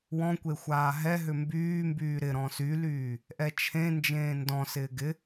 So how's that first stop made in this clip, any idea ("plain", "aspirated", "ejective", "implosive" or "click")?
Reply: plain